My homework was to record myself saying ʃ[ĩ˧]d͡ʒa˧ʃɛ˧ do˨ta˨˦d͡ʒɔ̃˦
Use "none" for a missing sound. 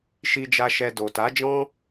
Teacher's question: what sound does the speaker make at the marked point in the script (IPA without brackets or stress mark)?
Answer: i˧